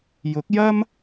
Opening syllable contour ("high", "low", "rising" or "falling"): rising